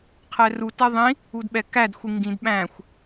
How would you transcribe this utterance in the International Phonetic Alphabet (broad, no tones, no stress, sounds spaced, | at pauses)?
qʰ ɛ r u t ɛ ðˤ ĩ | u d ɓ ɛ k æ d xʷ i ŋ ɡ ĩ d ɓ æ̃ xʷ